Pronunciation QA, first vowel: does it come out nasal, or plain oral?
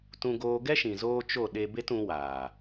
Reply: nasal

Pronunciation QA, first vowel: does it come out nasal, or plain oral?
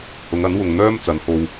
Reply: oral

